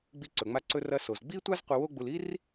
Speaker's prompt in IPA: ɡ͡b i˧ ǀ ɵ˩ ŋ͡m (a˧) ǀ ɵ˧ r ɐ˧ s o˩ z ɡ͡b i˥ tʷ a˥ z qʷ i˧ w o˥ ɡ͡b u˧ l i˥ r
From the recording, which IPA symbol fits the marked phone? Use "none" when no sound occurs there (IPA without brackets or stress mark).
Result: a˧